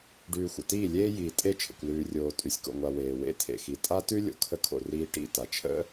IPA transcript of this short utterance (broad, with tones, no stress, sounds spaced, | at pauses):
ɖ ʉː˨ xʷ ə̰˨ t iː˦˨ lʲ eː˦ j iː˨ tʼ e˦˨ t͡ʃʰ ə̰˨ kʷ l ʉː˨ rʲ oː˨ tʼ ʉ˨ sʲ k o̰˨ ŋʷ a˨ w eː˨ w ḛ˦ tʰ ḛ˨ x i˨ tʼ a˦ t ʉ˦ lʲ o̰˨ kʰ ə˦ kʰ o̰˨ r iː˦ ʈ ḭ˦˨ t a˨ t͡ʃʰ ə̰˦